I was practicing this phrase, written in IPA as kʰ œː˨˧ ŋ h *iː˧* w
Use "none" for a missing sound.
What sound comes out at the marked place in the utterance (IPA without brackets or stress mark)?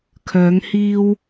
iː˧